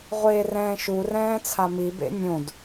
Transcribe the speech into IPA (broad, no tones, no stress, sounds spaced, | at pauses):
ʁʷ eː r ɛ̃ː ʃ u r ɛ̃ː t͡sʰ a m i b ḛ nʲ õ d